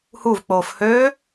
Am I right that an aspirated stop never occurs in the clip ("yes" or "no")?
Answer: yes